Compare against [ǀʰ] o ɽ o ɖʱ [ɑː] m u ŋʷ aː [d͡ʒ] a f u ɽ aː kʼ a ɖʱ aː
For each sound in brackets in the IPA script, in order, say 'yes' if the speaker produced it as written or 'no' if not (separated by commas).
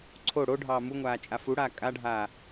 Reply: yes, yes, no